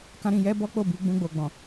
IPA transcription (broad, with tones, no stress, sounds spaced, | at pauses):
k ã˦ ɾ ĩ˧ j ɛ˦ b ɔ˦ k͡p o˦˨ b i˧ ɡ͡b ũ˧ ɡ͡b o˨ ɡ͡b ɔ̃˨